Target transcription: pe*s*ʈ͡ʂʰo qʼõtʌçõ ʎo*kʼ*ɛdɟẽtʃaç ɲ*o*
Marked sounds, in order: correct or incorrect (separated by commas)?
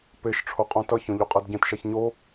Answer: incorrect, incorrect, correct